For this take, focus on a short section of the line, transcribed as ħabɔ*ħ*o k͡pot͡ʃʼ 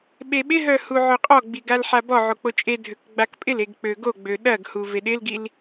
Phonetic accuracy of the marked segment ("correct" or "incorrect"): incorrect